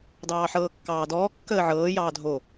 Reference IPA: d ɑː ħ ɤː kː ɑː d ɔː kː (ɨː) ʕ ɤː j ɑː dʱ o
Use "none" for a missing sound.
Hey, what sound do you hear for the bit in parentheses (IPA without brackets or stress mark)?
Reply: əː